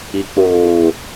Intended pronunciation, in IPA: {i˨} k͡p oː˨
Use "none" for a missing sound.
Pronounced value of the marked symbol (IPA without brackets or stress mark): i˨